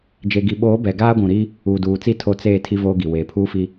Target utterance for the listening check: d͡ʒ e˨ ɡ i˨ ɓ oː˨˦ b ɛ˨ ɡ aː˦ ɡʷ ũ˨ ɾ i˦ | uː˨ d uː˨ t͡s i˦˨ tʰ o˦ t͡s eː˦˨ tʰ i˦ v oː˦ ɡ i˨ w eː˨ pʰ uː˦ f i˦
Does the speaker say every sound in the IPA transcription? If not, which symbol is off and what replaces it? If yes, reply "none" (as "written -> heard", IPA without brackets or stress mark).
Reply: none